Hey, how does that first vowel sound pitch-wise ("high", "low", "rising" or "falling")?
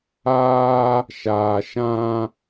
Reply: high